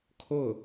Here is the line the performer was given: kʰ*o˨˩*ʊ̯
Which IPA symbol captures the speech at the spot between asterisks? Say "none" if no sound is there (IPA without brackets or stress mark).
o˥˩